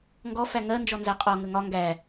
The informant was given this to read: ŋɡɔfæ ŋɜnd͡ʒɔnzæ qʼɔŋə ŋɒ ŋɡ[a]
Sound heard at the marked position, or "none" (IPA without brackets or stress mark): æ